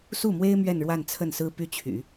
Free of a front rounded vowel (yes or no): no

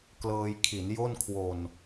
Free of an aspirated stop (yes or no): no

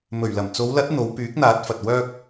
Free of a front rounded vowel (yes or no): no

